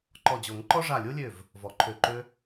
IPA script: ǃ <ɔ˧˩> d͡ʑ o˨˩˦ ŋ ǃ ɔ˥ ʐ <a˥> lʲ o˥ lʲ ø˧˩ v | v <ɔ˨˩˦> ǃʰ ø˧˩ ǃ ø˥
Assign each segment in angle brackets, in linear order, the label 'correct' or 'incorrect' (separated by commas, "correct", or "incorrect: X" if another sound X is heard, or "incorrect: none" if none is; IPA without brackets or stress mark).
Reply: correct, incorrect: a˧˩, correct